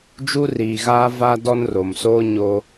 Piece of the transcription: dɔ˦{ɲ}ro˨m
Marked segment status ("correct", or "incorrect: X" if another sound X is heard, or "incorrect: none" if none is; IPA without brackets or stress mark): incorrect: n